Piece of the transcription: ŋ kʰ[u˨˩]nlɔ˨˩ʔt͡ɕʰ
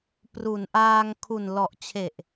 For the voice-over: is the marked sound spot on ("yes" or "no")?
yes